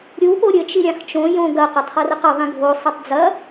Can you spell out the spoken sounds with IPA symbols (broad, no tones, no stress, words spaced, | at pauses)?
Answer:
ɾʲu poɾʲɘ t͡ʃiɾʲãxt͡ʃõ jõɡɐ qɐtˤχɐrɘqɐ ðˤĩɡʱo sˤɐtˤd͡zɐ